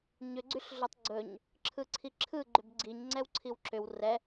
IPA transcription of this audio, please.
ɲ ʏ ɡ͡ǀ y ɬ ɮ ɵ tˤ ɡ͡ǀ ɵ ɲ | ǁʰ ɯ ǀʰ i ǁʰ ɯ ɡ͡ǃ ʏ b ɡ͡ǀ i ɲ ŋ͡ǀ ɛ w ǀʰ i w ǁ ʏ w r ɛ

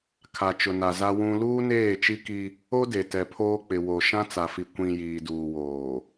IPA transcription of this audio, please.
kʰ a˨ t͡ʃ ʊ˨ n a˨ z a˦ w ũ˦ l uː˦ n eː˦˨ t͡ʃ i˦ k i˦ | o˦ d e˨ t ɛ˨ pʰ oː˦ k͡p ɪ˨ w o˨ ʃ ã˦ t͡s a˨ f i˨ kʷ ĩ˨ j iː˨ d uː˨ w oː˨

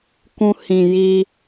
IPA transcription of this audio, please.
k ũ˧ h ĩ˨ j i˧

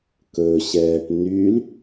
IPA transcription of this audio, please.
k ɵ ɕ ɛː ʈ n y l

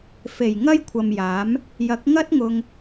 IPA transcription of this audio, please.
f e˨˩ j ŋ ɐ˥ j kʷʰ ɐ˨ m j aː˨˥ m | j ɐ˨˥ k̚ ŋ ɐ˥ t̚ ŋ ʊ˧ ŋ

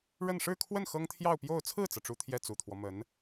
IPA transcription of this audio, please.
ɻ ə˥˧ n ʂ ɻ̩˥˧ kʰ w ə˥˩ n x ɤ˥ ŋ t̪ʰ j ɑ˥˧ ʊ̯ p j o˥˧ ʊ̯ t͡sʰ ɹ̩˥˩ t͡s ɤ˩ ʈ͡ʂ u˥ t̪ʰ j ɛ˥˩ t͡s u˨˩ t̪ʰ w ɔ˦ m ə˧˥ n

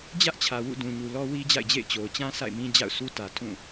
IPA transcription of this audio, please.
d͡ʑ ä˦ ʔ t͡ɕʰ ä˨ w ṵ˦˨ d ũ˨ ɲ u˨ l ɔ˦ w i˦ d͡ʑ a̰˦˨ ɪ̯ d͡ʑ ḛ˦˨ ɪ̯ t͡ɕ o˨ ʊ̯ t͡ɕ ã˦ s a̰˦˨ ɪ̯ m ĩ˦ d͡ʑ a̰˦˨ ʊ̯ sʰ u˦ t ä˨ tʰ ũ˦˨

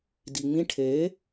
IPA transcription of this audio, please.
d i ŋ͡m ĩ ʈʰ e

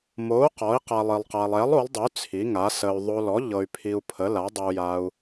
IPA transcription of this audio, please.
m o˨˥ u̯ q ɔ˨˥ i̯ q a˧ lˠ i˧ lˠ q a˧ lˠ ɛ˨˥ lˠ o˨˥ lˠ dˤ ə˨˥ y̯ t͡sʰ i˨˥ ŋ a˨˥ s ə˧ y̯ ðˤ o˧ l ɔ˨˥ ʎ ɤ˧ y̯ pʰ i˧ u̯ pʰ ə˨˥ l a˨˥ dˤ ə˧ u̯ j a˧ u̯

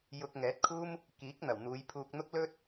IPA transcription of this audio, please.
j ʊ˧ k̚ ŋ ɛː˨˥ t̚ kʰ uː˥ m | k iː˨˥ k̚ n̪ ɐ˨˩ w n̪ uː˨˧ j pʰ uː˧ k̚ n̪ ʊ˥ k̚ l ɵ˥ t̚

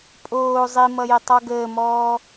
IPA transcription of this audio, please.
pʼ oː zˤ i m ʌ j e tˤ ɔ ɡ əː m ɔː

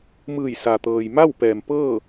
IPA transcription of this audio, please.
m ɯː˧˩ j s a˩ t̪ ɤː˩ j m a˥˨ w p ɛː˩ m p ɤː˥˨

